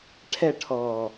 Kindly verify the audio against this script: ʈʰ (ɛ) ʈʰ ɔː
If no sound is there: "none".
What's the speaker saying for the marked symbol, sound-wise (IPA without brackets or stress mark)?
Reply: ɛ